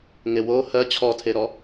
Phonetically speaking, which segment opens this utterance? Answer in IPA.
ŋ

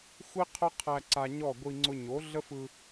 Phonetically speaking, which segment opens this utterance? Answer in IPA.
xʷ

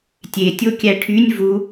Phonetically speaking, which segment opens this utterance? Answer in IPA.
tʲ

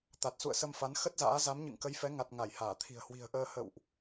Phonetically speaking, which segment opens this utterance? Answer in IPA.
t̪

